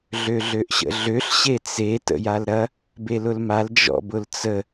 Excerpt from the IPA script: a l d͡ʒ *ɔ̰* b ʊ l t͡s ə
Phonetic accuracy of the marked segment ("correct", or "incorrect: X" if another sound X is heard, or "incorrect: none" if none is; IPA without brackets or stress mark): correct